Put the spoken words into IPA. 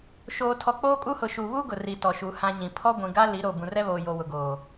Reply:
ʃ oː˨ tʰ ɔ˨ k͡p oː˦ kʼ u˦ h ʊ˨ ʃ u˨ β u˦ ɡ ʊ˨ r i˨ t ɔ˨ ʃ u˨˦ h ã˦ ɲ ĩ˨ pʰ ɔ˦ ɡʷ ĩ˨ ɡ a˦ l i˨˦ ɾ o˦˨ b ũ˨ r ɛ˦ β oː˨ j o˨ w ʊ˨ ɡ oː˨

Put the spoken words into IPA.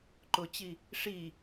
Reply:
ǃ ʊ t͡ɕ i | ʂ i

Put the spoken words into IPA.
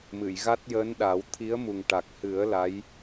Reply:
m ɨ˨˩˨ j ɣ a˦˥ t̚ j əː˧˥ n ɗ a˨˩˦ w t̪ʰ i˧˥ ə̯ m u˨˩ ŋ ʈ a˨˩ k̚ h ɨ˨˩˦ ə̯ l a˧˥ j

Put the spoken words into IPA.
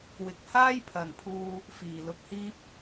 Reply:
w ɪ˨ k̚ h aː˥ j pʰ ɐ˨ n pʰ uː˧ | f iː˨ l ʊ˧ k̚ h iː˥ p̚

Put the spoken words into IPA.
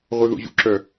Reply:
ʁʷ œ ð o̰ ʑ ṵ ǁ œ

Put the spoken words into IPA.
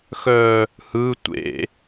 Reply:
x œ | h ɯ tʷ ḛ

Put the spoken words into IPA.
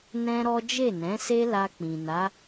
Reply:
n ɛ̃˦ ɾ ɔ˦ d͡ʒ e˦˨ n ɛ̃˨˦ s e˦ l a˧ k͡p ĩ˨ n a˨˦

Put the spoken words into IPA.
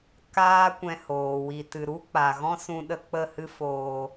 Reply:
k aː˦ kʷ ɛ̃˧ h oː˨ w i˨ t ɨ˨ ɾ u˦ k͡p a˨ ɣ ɔ̃˦ s ũ˧ ɗ ə˧ k͡p ə˦˨ h ɨ˦ f oː˨

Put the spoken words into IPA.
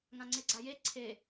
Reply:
ŋ ã ŋ͡ǀ e ɡ͡ǀ a j e ǀʰ e

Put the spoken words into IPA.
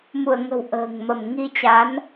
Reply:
m u˧˩ ə̯ ŋ ə̤˨˩ w ʔ ə̤ː˨˩ ŋ m ə˧˩ m ŋ i˧ t͡ɕ a˨˦ n

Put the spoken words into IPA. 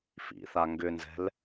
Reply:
f ḭ θ a ŋ ɡ ʏ n z ɛ̤ l

